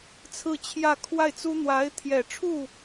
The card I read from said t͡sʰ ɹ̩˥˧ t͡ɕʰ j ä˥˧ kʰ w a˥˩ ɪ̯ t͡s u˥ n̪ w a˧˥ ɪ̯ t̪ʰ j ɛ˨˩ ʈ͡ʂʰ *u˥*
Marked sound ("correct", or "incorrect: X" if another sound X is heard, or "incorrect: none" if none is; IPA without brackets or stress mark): incorrect: u˥˩